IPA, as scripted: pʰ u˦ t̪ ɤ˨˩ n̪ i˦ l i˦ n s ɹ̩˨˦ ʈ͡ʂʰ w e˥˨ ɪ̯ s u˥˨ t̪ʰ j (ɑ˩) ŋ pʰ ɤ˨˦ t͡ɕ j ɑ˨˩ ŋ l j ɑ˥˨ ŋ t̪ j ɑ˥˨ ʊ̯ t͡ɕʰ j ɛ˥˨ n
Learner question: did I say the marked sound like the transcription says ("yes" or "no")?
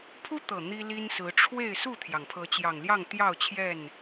yes